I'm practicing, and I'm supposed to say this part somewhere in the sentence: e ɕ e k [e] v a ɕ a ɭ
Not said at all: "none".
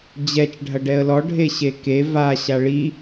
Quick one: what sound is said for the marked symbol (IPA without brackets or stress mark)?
e